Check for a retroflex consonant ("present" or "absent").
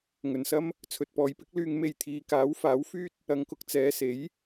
absent